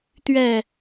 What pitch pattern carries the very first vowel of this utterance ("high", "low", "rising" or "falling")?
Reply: falling